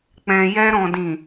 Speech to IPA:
k͡p ɛ̃˨ j ɛ˧ ɾ ɔ̃˨ d ĩ˨

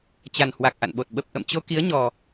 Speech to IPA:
t͡ɕ a˨˩ n h w a˨˩ k̚ ʔ a̰˧˨ n ɓ o˨˩ t̚ ɓ ə˨˩ p̚ ʔ ə̰˧˨ m t͡ɕ o˧ k i˨˦ ə̯ ɲ ɔ˨˩

